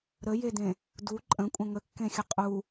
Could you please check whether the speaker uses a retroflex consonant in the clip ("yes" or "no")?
no